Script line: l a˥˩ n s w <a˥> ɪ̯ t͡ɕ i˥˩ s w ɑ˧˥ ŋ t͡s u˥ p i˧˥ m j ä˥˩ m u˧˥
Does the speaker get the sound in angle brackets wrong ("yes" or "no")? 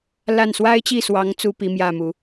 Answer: no